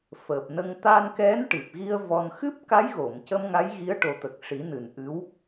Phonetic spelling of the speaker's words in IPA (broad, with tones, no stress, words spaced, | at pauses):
fəː˨˩p̚nə˧ŋ t̪a˧nkɛ˧˥nʈɨ˨˩p̚ɣi˧ə̯ vɔ˧n xɨ˦˥p̚ka˧˥jɣo˨˩˨m cə˧mŋa˧˥jɣi˧˥ə̯ ʈo˨˩˦t̪ə˨˩k̚ʂi˨˩˦ nɨ˨˩nʔɨ˧˥w